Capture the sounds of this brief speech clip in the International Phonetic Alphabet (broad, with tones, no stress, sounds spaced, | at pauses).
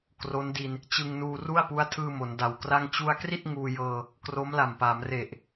k r o˦˥ n d i˧ n | t͡ɕ ɯ˧ ŋ n uː˧ r u˥˩ a̯ p u˦˥ a̯ tʰ ɯː˧ m o˩˦ n d a˨˩ w k r a˥˩ ŋ t͡ɕ u˧ a̯ k r i˥˩ t̚ ŋ uː˧ j ɤː˧ | k r o˦˥ m l a˨˩ m p a˩˦ m r e˨˩ ʔ